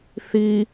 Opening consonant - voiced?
no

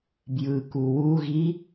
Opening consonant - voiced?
yes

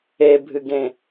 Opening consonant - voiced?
yes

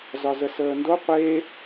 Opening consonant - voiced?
yes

